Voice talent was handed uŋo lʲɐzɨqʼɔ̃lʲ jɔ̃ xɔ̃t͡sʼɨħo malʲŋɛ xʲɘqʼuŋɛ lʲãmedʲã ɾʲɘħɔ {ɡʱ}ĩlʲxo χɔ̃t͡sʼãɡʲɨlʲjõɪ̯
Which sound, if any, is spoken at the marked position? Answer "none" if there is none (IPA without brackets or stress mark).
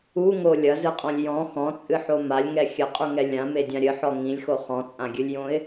ŋ